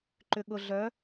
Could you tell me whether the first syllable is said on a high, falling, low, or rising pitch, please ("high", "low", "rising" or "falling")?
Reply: low